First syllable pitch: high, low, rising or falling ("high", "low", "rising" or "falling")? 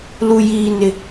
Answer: high